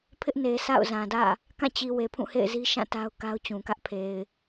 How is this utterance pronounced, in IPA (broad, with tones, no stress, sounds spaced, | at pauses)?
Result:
pʰ ɪ˦ ʔ n e˨ sʰ a̰˦˨ ʊ̯ z ã˨ d ä̰˦˨ | k ã˦˨ t͡ɕ i˨ w e˨ pʰ ũ˦˨ h ḛ˦˨ ɪ̯ z i˦ ʃ ã˦˨ t a˦ ʊ̯ k a˦ ʊ̯ t͡ɕ ũ˨ k ä˦ ʔ pʰ e˨ ɪ̯